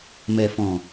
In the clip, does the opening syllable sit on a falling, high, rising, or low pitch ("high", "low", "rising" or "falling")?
low